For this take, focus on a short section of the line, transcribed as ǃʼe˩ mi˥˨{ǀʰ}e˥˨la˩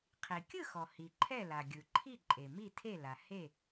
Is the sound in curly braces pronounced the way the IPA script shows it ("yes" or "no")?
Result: no